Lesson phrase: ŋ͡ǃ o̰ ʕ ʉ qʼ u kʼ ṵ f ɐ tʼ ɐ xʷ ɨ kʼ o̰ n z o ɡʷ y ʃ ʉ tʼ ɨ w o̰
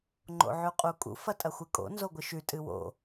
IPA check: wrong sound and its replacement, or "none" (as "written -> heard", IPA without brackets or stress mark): y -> ɨ